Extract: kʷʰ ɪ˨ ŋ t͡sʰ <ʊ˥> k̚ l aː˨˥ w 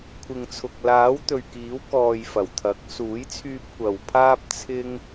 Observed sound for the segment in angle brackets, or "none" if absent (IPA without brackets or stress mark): ʊ˨